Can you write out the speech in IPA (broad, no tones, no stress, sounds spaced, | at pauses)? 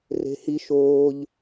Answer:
r e̤ h i ʃ oː ʎ